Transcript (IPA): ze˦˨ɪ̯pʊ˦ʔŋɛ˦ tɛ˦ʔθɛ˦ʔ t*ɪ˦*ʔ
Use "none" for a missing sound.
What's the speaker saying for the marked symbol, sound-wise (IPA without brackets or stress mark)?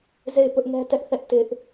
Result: ɪ˦